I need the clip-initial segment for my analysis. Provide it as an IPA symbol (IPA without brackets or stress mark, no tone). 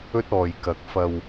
ɵ